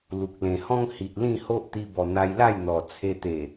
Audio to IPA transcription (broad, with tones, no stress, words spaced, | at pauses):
lu˨k̚ lẽ˨˩hɔ̃˦ŋ hi˨ʔlĩ˥˧ho˦ʔ t̪i˧bɔ˨˩ n̪a˧jla˥˧jn̪ɔ˨˩ t͡sʰe˧t̪e˨˩